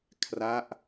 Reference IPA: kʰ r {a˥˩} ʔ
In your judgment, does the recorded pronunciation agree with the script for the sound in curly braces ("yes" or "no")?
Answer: no